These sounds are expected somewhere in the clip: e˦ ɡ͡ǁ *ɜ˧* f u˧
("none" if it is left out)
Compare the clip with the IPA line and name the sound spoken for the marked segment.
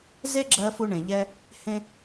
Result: ɜ˧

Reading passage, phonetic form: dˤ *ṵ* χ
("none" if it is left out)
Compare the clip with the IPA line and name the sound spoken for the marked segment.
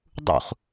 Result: ṵ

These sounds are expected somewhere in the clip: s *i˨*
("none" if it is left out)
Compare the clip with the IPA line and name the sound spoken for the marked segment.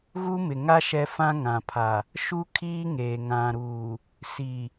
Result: i˨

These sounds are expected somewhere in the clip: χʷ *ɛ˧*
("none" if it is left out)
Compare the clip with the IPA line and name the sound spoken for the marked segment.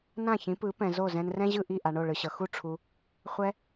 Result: ɛ˧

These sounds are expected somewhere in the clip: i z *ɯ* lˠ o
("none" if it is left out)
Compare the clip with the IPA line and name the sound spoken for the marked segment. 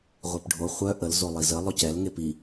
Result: ə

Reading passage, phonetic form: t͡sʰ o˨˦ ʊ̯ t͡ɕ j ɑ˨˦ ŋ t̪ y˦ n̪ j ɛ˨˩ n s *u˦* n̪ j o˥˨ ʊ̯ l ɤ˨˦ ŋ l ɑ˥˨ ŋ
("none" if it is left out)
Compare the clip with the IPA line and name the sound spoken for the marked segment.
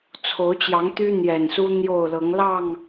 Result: u˦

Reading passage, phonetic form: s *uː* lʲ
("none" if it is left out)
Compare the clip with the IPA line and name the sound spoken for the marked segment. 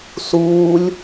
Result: uː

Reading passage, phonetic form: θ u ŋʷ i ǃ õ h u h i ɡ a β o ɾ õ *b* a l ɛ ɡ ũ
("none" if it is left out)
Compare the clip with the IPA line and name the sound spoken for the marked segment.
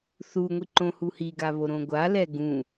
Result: ɡʷ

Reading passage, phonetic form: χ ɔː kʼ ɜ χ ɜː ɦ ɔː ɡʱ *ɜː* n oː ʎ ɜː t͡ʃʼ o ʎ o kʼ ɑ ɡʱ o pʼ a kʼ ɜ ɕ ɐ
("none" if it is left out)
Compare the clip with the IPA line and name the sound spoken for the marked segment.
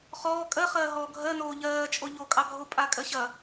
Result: ɜ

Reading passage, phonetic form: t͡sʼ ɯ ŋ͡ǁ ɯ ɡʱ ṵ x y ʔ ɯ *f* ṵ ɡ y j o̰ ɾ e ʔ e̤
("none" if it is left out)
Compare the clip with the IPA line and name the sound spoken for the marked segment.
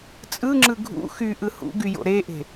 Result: h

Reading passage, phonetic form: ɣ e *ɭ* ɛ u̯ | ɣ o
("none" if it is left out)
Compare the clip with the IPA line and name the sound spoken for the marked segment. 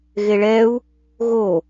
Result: ɭ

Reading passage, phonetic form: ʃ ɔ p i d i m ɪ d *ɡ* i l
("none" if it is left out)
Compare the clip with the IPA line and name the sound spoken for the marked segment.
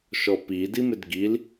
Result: ɡ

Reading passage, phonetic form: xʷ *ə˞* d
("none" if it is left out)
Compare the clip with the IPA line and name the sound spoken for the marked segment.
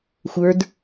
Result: ə˞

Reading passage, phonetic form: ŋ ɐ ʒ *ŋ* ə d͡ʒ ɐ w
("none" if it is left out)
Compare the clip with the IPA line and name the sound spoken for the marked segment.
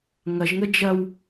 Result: ŋ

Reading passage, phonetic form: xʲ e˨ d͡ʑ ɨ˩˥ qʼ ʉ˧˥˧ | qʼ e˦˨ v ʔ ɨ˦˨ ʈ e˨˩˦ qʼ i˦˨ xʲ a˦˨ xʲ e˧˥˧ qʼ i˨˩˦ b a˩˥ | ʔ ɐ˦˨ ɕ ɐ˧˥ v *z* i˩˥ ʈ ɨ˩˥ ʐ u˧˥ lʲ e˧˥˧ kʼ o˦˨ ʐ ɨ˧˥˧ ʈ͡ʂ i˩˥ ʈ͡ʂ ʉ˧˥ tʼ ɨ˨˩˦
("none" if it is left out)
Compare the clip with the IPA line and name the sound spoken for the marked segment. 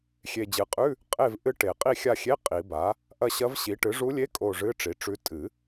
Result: ɕ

